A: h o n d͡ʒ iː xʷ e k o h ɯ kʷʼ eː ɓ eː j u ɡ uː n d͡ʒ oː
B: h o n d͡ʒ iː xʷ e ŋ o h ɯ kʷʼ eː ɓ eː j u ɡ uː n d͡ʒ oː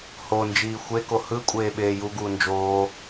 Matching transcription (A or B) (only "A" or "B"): A